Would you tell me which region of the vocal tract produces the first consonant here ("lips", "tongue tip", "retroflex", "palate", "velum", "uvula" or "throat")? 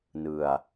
tongue tip